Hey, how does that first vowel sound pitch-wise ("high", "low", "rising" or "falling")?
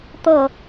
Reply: falling